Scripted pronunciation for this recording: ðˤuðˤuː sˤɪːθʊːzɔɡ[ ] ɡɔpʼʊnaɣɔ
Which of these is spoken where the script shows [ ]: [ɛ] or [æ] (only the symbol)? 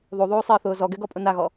ɛ